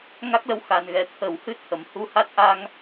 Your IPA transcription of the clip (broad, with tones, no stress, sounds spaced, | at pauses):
ŋ a˦˥ k̚ l ə˧˥ w x a˨˩ n ɣ ɛ˨˩ t̪ʰ ə˨˩˦ w h ɨ˦˥ t̚ h ə˨˩˨ m h u˧˥ h a˦˥ t̚ ʔ a˧ ŋ